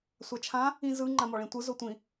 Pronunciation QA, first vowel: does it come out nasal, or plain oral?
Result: oral